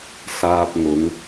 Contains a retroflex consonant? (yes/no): no